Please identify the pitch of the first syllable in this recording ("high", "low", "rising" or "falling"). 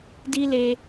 high